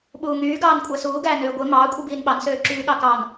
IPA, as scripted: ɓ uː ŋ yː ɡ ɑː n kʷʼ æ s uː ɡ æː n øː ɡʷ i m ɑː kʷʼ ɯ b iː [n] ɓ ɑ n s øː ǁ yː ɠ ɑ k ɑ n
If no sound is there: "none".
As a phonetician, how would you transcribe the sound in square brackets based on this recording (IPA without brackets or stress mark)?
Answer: n